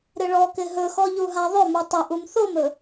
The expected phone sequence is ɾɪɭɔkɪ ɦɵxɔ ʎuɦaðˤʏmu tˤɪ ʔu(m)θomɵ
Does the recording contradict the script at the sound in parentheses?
no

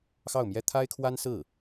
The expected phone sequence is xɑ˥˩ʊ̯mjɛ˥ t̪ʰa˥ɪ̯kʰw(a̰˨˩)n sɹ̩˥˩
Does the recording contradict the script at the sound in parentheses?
yes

